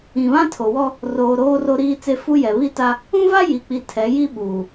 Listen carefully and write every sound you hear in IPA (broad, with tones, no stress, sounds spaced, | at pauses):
ĩ˨ β ã˦ tʰ o˨ w ɔ˦ | r oː˨ ɾ oː˨ r o˨ ɾ iː˨ t͡s e˨ f u˦ j ɛ˨ β i˦ t a˦ | ũ˦ v a˦ j i˨ k͡p i˨ tʰ ɛ˨˦ j i˦ ɓ uː˨